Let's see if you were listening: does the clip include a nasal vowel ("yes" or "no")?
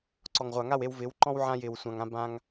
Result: yes